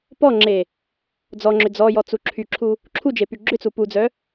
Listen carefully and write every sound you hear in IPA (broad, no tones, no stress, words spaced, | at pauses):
pɔŋ͡ǁe | d͡zɔŋ͡ǁʏ d͡zɔjɔt͡su ǁʰyǁʰu | ǁʰud͡ʒepy ɡ͡ǁʏt͡su pud͡zœ